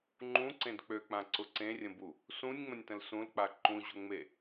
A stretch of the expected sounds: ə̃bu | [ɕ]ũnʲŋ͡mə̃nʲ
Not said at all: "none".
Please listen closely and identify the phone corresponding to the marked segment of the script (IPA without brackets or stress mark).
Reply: s